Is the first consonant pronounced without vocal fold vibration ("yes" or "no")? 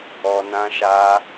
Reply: no